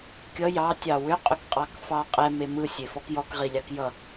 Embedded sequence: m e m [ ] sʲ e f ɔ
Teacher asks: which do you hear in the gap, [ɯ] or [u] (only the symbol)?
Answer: ɯ